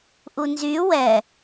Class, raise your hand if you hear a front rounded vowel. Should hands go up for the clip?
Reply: yes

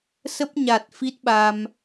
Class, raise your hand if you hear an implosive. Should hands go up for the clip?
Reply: yes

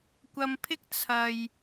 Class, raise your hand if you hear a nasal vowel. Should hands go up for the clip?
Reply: no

